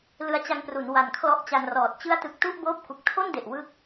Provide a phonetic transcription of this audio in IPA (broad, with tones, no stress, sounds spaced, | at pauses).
l ɯ˧ a̯ t͡ɕ a˧ ŋ p r u˩˦ n w a˨˩ n kʰ l ɔ˦˥ ʔ t͡ɕ a˧ n r ɔː˨˩ t̚ t͡ɕ ɯ˦˥ a̯ t ɯ˨˩ k̚ t u˥˩ ʔ b oː˦˥ p̚ k u˨˩ k̚ tʰ o˥˩ n d e˨˩ ʔ w ɯ˥˩ k̚